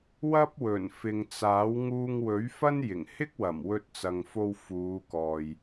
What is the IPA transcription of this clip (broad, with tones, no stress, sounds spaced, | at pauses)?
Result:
w ɐ˥ p̚ w ɵ˨˩ n f ɪ˨ ŋ t͡s aː˨˥ w ŋ uː˧ ŋ w ɵ˨˥ ɥ f ɐ˥ n j ɪ˨˩ ŋ h ɪ˥ k̚ w ɐ˨˩ m w ɵ˧ t̚ t͡s ɐ˨ ŋ f o˧ w f uː˨˧ k ɔː˨ j